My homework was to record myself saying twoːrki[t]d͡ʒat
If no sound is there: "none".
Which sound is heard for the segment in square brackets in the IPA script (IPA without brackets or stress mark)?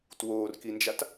n